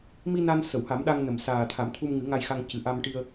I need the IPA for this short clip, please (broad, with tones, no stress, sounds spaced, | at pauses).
m i˧ n a˧ n s ə˨˩˨ w h a˨˩˦ m ɗ a˧ ŋ n ə˨˩˨ m s aː˨˩ t̪ʰ a˨˩˦ m t̪ʰ u˧ m ŋ ɨ˨˩˦ ŋ a˧ j x a˧ ŋ c ɨ˨˩ ʔ a˧ m ʈ i˧ ə̯